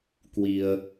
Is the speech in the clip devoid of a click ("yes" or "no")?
yes